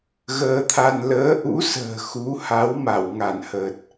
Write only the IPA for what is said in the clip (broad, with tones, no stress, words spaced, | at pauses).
ɣəː˧t̪ʰa˧n ləː˨˦ʔṵ˧˥sə̤ː˨˩ xu˨˦ ha˨˦wma˧˩w ŋa˧˩nhəː˨˩t̚